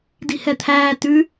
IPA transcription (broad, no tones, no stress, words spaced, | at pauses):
di̤hɛt̪ʰæː tʉ